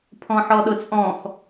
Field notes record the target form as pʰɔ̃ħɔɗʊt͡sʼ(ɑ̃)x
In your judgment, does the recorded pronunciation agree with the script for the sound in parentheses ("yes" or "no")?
no